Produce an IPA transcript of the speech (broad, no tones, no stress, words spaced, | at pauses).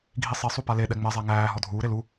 ɡʱisˤi sˤupale ɗɛŋ͡mɛzˤæ ŋæː ɦɔdʱuːɾe lu